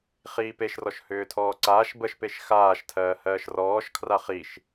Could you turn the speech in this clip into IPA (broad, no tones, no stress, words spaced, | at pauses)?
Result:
χiːpeʃrɔʃ hʏːtʰɔːǀaːʃ bəʃpeʃ xaːʃtʰɜː hɜːʃrɔːʃkʰra χiʃ